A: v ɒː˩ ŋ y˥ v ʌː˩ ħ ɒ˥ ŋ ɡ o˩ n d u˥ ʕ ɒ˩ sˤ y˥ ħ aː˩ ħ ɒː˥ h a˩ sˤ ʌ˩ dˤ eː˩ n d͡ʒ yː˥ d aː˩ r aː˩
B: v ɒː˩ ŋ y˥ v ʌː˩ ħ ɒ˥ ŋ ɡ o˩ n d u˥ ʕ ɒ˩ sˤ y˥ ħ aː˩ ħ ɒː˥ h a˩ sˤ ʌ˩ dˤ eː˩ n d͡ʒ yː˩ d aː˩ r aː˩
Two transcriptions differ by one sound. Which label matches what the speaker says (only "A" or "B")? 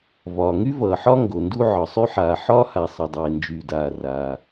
B